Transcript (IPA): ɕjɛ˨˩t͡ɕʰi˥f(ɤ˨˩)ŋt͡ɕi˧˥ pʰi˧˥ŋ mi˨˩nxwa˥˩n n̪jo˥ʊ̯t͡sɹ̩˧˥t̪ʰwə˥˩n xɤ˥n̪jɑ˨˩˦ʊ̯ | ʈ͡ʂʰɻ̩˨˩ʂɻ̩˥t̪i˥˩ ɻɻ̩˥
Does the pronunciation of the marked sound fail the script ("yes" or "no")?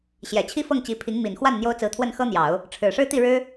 yes